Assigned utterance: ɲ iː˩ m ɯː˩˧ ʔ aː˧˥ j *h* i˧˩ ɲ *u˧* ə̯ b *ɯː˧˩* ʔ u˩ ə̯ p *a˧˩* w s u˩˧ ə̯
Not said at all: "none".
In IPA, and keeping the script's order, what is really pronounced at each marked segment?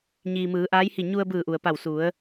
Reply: h, u˧, ɯː˧˩, a˧˩

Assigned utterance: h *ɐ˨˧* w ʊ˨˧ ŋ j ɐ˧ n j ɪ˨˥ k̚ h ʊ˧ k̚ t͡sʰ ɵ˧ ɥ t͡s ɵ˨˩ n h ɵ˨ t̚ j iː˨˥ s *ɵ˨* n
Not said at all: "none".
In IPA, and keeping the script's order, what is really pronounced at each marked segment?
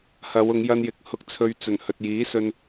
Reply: ɐ˨˧, ɵ˧

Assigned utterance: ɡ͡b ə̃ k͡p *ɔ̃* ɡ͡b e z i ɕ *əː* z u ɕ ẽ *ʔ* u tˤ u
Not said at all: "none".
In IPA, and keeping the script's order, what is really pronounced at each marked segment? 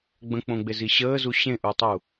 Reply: õ, əː, ʔ

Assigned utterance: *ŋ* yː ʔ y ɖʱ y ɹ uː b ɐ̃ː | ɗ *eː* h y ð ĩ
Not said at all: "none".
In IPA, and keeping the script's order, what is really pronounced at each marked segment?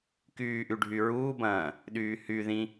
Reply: k, yː

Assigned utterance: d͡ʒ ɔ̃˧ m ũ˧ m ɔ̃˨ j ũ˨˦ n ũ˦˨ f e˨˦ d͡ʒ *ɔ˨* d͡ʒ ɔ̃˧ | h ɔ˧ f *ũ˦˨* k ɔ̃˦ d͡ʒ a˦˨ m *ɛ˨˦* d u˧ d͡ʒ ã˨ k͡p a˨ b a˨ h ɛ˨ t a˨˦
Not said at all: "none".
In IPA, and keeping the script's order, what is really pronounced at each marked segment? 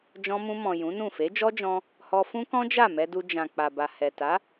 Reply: ɔ˦, ũ˦, ɛ˧

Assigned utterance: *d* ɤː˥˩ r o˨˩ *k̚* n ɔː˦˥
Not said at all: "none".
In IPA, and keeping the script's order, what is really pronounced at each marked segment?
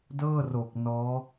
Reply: d, k̚

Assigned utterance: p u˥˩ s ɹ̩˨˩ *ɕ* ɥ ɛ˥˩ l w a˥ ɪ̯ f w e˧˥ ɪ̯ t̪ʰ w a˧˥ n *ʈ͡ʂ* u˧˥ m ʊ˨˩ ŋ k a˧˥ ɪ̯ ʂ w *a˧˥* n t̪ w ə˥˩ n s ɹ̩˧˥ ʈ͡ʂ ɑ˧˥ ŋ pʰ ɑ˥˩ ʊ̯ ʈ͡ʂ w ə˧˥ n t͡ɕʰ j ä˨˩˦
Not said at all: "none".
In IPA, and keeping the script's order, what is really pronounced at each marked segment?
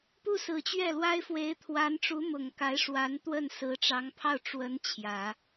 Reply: t͡ɕ, ʈ͡ʂ, a˧˥

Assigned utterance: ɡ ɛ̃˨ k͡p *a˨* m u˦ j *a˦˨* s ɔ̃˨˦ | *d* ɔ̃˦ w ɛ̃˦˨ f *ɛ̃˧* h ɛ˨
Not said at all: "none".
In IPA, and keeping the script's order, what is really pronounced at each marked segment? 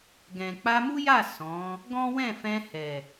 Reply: a˧, a˦˨, ɡ, ɛ̃˧

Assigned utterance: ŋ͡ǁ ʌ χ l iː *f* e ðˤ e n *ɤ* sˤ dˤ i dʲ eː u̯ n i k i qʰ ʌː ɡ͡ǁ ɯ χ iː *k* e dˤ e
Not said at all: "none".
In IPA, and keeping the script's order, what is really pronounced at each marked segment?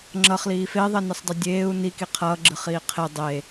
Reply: f, ɯ, qʰ

